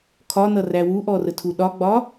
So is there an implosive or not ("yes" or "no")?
yes